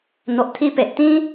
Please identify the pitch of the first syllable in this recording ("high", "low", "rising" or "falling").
low